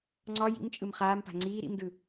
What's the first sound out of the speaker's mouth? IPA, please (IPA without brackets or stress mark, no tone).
ŋ͡ǀ